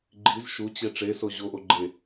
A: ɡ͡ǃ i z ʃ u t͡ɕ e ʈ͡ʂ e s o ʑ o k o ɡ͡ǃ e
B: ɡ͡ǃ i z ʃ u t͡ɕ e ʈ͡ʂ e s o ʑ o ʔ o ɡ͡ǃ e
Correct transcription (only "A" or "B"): B